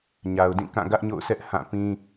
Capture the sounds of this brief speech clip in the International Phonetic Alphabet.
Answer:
ɲ a˨ ʊ̯ d ĩ˦˨ k ã˦˨ ɡ ä˦ ʔ ɲ o̰˦˨ ʊ̯ sʰ ɛ˦ ʔ h ã˦˨ p ĩ˦

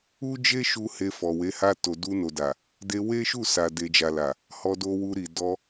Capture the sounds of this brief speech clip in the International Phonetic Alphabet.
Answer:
u˦ d͡ʒ e˦ ʃ u˧ h e˧ f ɔ˨ w e˨˦ h a˧ t o˨ d u˧ n o˨ d a˨ | d e˧ w e˦ ʃ u˦˨ s a˨ d e˨ d͡ʒ a˨ l a˨ | h ɔ˧ d o˧ w u˧ ɾ i˨ d ɔ˧

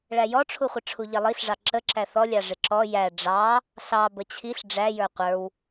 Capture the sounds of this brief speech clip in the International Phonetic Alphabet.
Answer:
ɭ æ j ɔ ʈ͡ʂʰ u χʷ ɪ ʈ͡ʂʰ u ʎ ɛ lˠ i ɬ ʐ ɑ ǁ ə ǁ æ θ ɔ lʲ ɑ ʐ ɪ ǁ ɔ j æ ɖ͡ʐ ɑ | ɬ ɑ b ə t͡ɕʰ i ɬ ɖ͡ʐ æ j ə˞ qʷ ə˞ w

